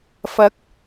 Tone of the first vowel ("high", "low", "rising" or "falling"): rising